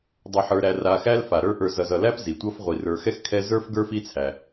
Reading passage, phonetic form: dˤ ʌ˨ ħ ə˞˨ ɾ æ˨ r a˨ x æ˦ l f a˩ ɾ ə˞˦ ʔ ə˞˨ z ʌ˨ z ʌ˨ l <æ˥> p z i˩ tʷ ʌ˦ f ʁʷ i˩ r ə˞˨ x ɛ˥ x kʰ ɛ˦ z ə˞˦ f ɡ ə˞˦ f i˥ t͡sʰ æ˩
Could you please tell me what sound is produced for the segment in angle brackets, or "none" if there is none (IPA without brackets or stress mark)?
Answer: æ˥